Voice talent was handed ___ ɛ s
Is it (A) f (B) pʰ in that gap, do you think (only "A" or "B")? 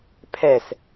B